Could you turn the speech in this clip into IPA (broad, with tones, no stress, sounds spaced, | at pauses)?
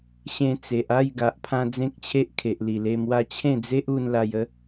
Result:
ɕ ẽ˧ t͡s e˨ ʔ a˥˧ j ɡ a˨ ʔ pʰ ã˧ d͡z ẽ˦ k̚ t͡ɕʰ e˦ ʔ kʰ e˨ ʔ l i˨˩ l e˧ m w a˥˧ t͡ɕʰ ẽ˥˧ d͡z e˦ ʔ u˧ n l a˧ j ə˦